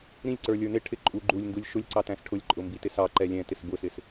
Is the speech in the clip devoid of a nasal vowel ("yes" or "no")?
no